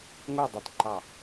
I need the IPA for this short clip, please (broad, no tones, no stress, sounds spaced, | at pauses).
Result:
ŋ o dˤ i t ǃ ɑ